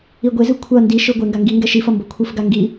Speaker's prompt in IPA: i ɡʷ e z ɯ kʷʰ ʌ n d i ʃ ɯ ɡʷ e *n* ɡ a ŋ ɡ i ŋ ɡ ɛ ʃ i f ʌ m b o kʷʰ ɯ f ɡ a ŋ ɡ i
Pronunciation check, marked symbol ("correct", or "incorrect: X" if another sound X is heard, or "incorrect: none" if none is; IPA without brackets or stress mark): incorrect: ŋ